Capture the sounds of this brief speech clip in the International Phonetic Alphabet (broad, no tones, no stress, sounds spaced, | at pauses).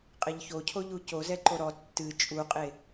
qʼ e ʎ ç o cʰ o ʎ u c o z ɛ ǃ o ɾ ɔ tː ɨ t͡ʃʼ u qʼ e